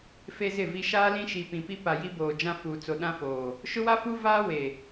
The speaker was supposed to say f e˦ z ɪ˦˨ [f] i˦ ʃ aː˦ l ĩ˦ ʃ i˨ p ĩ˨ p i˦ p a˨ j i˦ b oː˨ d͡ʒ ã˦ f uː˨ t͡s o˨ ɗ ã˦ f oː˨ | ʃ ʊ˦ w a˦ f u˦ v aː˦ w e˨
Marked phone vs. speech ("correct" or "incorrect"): incorrect